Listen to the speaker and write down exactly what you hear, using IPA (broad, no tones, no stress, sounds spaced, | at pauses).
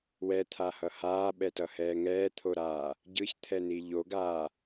w ɛ t̪ʰ a h ʌ h aː ɓ ɛ t ʌ h ɛː ŋ ɛː t̪ʰ o ɾ aː | ɟ ɯ ç t̪ʰ ɛ n i ʎ o ɡ aː